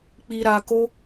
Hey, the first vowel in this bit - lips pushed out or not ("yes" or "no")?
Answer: no